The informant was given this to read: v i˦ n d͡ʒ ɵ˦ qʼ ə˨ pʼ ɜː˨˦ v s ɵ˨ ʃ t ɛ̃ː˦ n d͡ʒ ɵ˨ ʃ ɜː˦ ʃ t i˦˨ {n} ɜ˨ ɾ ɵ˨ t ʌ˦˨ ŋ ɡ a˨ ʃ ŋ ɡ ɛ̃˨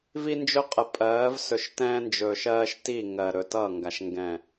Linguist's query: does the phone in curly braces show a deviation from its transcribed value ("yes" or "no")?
yes